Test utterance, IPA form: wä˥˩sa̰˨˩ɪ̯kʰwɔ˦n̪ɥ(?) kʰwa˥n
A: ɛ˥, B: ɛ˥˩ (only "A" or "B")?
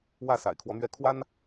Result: B